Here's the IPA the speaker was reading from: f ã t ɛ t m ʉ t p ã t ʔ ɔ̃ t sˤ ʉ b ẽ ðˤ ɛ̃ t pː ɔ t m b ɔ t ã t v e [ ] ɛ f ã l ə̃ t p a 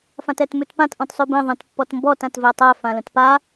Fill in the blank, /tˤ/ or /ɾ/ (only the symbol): tˤ